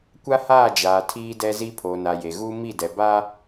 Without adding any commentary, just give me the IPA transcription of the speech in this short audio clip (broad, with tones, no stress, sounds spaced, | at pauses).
kʷ a˦ h aː˦˨ d͡ʒ aː˨ tʰ iː˦ d ɛ˦ z i˦ pʰ oː˨ n a˨ j e˨ ɣ uː˦ m i˦˨ d ɛ˨ b a˦